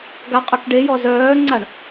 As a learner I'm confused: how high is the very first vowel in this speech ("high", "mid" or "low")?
low